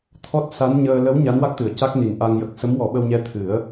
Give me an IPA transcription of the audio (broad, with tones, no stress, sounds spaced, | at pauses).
t̪ʰ ɔ˦˥ t̚ s a˧˥ n ɲ əː˧ l ə˧˥ w ɲ a˧˥ n w a˦˥ k̚ t̪ ɨ˨˩˨ ə̯ c a˦˥ k̚ n i˨˩ n ʔ a˧ ŋ j ə˨˩ k̚ s ə˧˥ m w ɔ˨˩˦ ɓ ə˧ w ɲ ɛ˧ t̪ʰ ɨ˨˩˦ ə̯